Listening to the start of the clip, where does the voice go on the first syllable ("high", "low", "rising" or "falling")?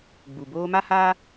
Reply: low